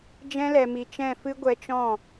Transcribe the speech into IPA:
d͡ʒ ɛ̃˦ l ɛ˧ m i˧ t͡ʃ ɛ̃˦˨ f ɨ˦ ɡʷ ɛ˧ t͡ʃ ɔ̃˦˨

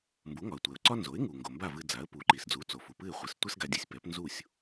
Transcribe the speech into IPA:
m b u˩˥ ŋ ɒ˩ ə̯ tʷ ɛ˩ ʊ̯ ǀ ɒ˥ n z o˩˥ ɪ̯ ŋ u˩ ŋ ɡ o˩ m b a˥˩ v ɨ˧ d͡z a˩˥ ə̯ p u˩˥ ǃ i˩ s d͡z u˩˥ t͡s o˩ f u˩ p ɨ˥˩ ɪ̯ χʷ ɨ˩˥ s tʷ ɛ˥ s ɡ a˧ dʲ ɨ˧ sʲ p ɛ˩˥ p n z u˥˩ sʲ

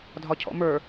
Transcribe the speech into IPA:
dʱ ɒ cʰ ɔ̰ m ə˞

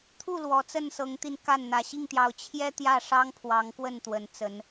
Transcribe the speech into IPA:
t̪ʰ u˥˨ l w ɔ˨˦ t͡s ə˥˨ n s ɤ˨˦ ŋ t̪ i˧ n k a˥˨ n n̪ ä˨˩ ɕ i˥˨ ŋ t̪ j ɑ˨˦ ʊ̯ t͡ɕʰ j ɛ˦ t̪ j ä˥˨ ʂ ɑ˦ ŋ pʰ w ɑ˨˦ ŋ k w ə˥˨ n t̪ w ə˨˦ n t͡s ə˨˦ n

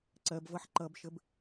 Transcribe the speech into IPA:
ǀ ɜ b v ʌ ħ ǃ ʌ b ʃ ə b

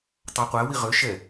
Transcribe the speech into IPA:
tˤ ɑ qʷ æ w i ʁ ø ʃ ɛ

